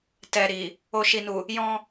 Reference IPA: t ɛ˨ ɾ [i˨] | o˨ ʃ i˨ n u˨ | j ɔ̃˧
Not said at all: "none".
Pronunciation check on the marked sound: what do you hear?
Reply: i˨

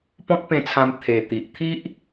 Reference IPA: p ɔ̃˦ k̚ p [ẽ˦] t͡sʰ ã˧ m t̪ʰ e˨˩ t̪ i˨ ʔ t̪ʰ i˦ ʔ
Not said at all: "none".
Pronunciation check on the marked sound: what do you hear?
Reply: ẽ˧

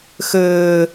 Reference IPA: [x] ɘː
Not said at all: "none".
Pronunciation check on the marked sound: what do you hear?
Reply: x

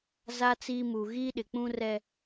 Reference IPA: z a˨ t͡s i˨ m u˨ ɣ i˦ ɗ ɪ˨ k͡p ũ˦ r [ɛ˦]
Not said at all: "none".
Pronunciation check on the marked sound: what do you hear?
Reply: ɛ˦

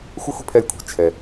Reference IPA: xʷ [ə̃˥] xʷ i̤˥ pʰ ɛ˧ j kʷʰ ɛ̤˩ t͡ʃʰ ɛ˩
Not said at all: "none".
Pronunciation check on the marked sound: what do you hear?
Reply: ə˥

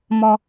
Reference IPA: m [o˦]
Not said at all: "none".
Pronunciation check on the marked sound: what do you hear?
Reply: ɔ˦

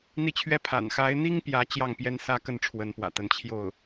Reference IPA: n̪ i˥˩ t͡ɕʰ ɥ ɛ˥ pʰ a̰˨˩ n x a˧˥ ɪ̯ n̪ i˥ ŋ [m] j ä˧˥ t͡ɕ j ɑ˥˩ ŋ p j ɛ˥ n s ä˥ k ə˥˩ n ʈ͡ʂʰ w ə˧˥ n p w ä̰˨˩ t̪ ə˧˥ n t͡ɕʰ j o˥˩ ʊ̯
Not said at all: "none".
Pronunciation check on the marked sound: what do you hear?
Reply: p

